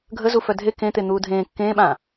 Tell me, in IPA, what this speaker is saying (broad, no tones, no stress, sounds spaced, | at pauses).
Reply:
ɡʱ ə z u f œ dʱ e k ẽ t̪ e n̪ uː dʱ ẽː kː ẽː ɓ ãː